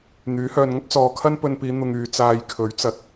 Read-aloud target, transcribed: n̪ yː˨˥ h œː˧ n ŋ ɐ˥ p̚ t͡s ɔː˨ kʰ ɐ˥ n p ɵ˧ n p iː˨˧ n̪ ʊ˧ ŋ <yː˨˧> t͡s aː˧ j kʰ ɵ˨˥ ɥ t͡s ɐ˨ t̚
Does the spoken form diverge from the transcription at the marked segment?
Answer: no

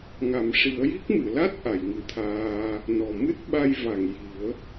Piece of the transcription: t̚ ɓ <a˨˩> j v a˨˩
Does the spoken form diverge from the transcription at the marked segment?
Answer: yes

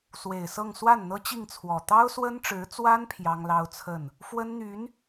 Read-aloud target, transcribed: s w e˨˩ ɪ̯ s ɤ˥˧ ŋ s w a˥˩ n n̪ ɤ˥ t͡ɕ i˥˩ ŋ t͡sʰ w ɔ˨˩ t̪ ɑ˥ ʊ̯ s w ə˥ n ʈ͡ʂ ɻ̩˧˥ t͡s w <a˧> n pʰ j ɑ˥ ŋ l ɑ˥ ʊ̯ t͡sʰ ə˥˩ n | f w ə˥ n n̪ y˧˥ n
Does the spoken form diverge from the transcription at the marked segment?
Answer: yes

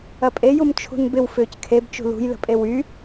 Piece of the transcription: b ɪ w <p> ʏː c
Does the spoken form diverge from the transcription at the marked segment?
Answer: yes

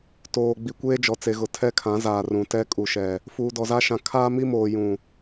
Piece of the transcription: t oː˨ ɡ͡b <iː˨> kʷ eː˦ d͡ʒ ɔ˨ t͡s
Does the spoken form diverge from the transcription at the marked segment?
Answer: yes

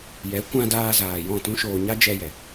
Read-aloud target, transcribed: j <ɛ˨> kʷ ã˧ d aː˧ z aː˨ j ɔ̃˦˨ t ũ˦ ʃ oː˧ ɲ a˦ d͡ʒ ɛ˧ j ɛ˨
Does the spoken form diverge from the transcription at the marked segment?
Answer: yes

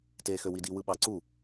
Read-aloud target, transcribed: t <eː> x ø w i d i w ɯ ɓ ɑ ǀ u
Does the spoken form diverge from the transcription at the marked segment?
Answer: no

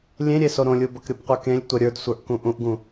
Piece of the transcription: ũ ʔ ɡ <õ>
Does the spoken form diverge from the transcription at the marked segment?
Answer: yes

